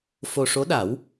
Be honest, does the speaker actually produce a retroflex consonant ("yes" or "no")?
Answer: yes